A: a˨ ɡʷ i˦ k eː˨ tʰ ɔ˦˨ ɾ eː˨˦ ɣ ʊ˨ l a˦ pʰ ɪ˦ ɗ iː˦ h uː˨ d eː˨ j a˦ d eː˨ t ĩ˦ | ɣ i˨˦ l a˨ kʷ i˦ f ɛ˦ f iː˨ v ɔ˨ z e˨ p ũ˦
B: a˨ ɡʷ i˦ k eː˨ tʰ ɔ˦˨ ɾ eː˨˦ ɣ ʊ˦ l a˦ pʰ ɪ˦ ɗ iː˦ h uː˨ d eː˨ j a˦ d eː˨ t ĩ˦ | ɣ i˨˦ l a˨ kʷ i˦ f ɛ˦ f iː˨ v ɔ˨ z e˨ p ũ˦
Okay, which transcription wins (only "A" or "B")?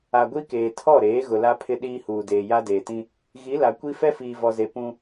A